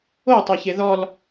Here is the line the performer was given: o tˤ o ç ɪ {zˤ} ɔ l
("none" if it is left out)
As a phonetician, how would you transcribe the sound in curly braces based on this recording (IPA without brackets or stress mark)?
ð